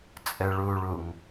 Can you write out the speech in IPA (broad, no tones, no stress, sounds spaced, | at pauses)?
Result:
t͡sʼ ɘ ɭ u ɭ u ŋ